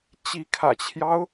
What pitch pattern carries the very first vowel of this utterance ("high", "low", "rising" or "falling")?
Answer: rising